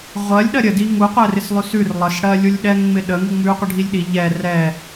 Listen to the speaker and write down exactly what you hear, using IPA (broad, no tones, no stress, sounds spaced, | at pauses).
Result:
ʁʷ ɜ lʲ ɗ ɜ ɾʲ ə d i ŋ u qʷ ɛ r ɪ s lˠ ʉ s ʉ r lˠ ə s ɽ ɜ lʲ u lʲ ɗ ɛ ŋ ŋ͡m ɪ ɗ ə ŋ u ŋ͡m ʉ qʷ ə ɖʱ i lʲ ɗ i ʎ ɛ r ɛ